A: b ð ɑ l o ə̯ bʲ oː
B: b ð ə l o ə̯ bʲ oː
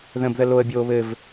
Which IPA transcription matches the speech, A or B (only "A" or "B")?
B